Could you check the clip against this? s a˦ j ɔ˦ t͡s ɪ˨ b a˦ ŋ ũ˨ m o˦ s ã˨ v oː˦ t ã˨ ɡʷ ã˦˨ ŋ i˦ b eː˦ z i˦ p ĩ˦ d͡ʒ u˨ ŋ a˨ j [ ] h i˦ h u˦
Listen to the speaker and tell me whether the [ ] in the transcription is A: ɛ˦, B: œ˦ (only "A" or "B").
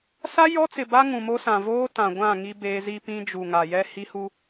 A